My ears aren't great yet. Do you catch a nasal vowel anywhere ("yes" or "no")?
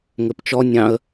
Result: yes